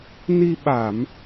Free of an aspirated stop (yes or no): yes